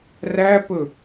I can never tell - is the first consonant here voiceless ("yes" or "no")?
no